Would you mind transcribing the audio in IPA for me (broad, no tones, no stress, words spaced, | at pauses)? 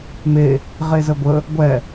me | ʁezəɡʷə | ɡʷɛ